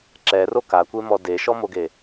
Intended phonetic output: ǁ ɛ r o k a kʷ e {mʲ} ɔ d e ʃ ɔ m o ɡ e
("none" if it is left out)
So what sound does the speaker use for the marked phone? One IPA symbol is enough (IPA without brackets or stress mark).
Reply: m